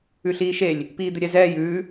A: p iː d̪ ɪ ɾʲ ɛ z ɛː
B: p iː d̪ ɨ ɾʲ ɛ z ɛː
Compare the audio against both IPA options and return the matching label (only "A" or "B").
A